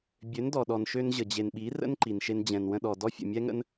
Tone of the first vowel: rising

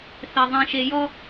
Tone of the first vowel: low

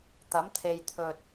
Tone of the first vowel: rising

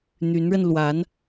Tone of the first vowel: rising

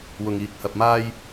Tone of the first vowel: low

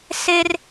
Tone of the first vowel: high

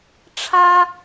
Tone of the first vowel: high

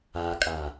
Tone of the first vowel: low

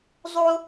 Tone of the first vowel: high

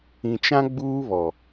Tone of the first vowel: low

